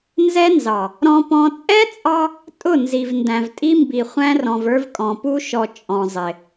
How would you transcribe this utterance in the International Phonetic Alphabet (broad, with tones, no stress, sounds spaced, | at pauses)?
n z ɛ˦ n z ɑ˨ | ɾ ɔ̃˦ p ɔ̃˦ t͡sʼ ɛ˦ t͡sʼ ɑ˦ | tʼ ʊ˦˨ n z i˨ v n d æ̃˨ v tʼ i˦ m b i˨ χʷ æ̃˦ r ɔ̃˨ v ə˞˦ v kʼ ɔ̃˨ p u˦ ʃ ɔ˨ t͡ʃʼ ɔ̃˨ zˤ ɪ˨